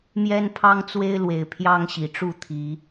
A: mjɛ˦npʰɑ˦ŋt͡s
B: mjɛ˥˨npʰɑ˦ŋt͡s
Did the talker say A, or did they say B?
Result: A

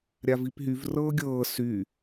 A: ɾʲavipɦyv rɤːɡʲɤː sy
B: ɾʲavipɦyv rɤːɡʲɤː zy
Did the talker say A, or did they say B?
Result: A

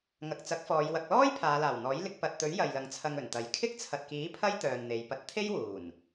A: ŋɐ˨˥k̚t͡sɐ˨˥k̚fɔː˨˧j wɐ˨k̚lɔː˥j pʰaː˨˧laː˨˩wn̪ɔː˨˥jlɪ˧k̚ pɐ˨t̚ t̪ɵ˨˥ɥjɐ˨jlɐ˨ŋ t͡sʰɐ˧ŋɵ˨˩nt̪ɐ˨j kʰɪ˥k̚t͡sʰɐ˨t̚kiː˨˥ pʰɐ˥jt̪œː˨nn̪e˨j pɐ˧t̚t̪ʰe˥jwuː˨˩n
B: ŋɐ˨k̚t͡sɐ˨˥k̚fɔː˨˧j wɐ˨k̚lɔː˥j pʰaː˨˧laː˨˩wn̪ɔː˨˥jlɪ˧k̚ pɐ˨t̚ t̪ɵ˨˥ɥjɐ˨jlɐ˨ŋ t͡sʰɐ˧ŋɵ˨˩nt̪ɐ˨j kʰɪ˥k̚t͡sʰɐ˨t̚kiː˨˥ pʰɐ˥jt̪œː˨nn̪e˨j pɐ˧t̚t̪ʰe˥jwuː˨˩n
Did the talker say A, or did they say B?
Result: B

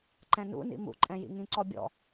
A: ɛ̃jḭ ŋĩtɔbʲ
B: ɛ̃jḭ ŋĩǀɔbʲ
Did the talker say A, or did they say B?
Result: B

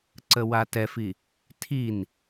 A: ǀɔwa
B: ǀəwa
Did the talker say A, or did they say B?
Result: B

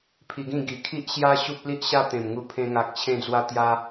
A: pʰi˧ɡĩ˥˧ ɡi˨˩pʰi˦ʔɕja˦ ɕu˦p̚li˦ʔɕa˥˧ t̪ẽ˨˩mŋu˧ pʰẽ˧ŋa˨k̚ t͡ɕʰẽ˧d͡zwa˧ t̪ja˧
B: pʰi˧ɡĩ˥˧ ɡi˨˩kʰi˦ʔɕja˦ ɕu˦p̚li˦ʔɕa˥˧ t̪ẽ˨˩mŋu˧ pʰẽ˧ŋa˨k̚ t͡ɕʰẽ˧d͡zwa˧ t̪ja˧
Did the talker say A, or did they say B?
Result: B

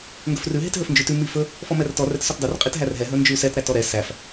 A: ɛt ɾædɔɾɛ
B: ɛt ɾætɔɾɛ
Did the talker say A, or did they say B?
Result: B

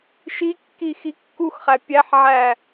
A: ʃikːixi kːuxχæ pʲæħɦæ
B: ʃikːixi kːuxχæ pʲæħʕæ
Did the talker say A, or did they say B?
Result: B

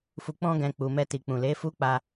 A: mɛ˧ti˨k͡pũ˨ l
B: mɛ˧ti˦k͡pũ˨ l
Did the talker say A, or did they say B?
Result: A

